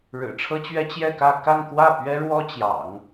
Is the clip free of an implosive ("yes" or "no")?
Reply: yes